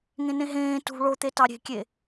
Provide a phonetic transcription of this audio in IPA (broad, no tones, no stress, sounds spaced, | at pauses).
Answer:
ŋ ẽ n ẽ ɦ ẽː t ṳ ɭ o t̪ e t ɑ ɾʲ e̤ kʲ e